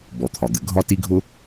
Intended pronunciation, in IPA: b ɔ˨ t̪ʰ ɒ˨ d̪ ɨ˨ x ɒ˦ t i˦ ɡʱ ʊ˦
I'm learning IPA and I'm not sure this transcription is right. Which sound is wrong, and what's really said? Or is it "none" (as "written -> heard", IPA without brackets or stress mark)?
x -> ɡʱ